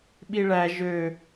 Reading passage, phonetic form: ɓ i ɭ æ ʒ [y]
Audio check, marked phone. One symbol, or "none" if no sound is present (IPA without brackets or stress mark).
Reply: ø